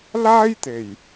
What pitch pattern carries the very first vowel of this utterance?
high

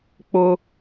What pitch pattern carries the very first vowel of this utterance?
high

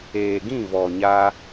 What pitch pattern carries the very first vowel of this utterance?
low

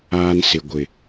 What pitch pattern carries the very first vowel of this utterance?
high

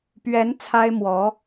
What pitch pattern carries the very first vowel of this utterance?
rising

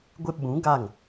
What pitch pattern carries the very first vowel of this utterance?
high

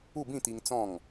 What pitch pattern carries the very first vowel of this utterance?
falling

